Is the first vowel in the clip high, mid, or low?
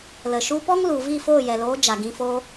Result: mid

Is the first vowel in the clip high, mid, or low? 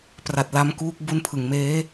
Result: low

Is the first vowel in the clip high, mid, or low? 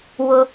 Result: high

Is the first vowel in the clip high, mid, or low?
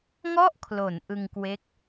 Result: mid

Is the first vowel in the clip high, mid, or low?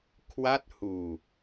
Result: low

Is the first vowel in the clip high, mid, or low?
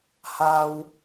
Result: low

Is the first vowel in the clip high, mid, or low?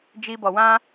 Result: high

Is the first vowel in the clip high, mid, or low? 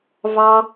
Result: low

